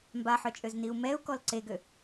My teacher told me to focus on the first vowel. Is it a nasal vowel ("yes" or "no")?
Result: no